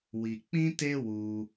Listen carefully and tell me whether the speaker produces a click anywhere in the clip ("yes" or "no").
no